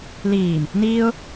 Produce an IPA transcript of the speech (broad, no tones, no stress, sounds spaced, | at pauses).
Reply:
l iː m | n iː ʊ̯